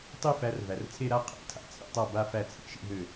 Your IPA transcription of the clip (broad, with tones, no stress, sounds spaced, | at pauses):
tˤ i˥˧ f æ˨˦ r v æ˩ r t͡sʰ e˥˧ ɾ a˥˧ qʰ æ̰˨˦ tʰ a̰˥˧ t͡sʰ ḭ˥˩ tˤ a˥˩ b a˥˧ f æ˥˩ t͡sʰ ḭ˨˦ ʃ ḭ˥˧ ɦ ø˥˩